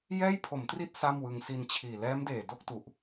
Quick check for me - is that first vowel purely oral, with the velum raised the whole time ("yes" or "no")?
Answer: yes